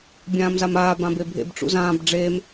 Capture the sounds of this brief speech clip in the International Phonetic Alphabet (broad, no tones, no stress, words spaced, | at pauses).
bʲãːmzamaː bãbebʱḛb ʈ͡ʂṵzãːb ɖ͡ʐeːm